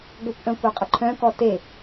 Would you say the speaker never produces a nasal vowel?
no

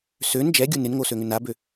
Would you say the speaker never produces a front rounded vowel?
no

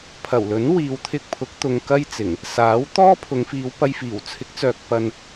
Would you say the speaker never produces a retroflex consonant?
yes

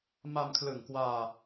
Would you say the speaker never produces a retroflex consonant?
yes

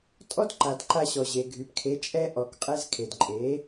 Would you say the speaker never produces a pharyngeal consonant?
yes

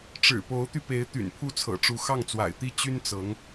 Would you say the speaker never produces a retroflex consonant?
no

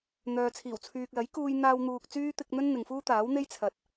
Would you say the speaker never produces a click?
yes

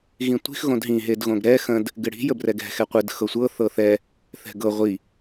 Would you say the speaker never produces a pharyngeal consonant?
yes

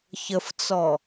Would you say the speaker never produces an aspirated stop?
yes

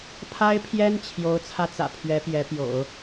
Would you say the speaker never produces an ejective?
yes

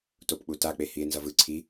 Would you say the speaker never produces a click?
no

